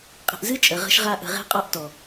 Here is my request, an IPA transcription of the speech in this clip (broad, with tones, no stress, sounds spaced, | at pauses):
qʼ ə̤˨ ʔ z ɨ˦ t͡ʃʼ ə˨ ʁ ə̤˦ ʃ ʁ a˦ ʔ ə̤˨ ʁ e̤˦ qʼ ɒ˦ ʔ t ɔ˨